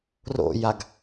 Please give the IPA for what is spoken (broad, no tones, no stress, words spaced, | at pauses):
ro̰jaɡ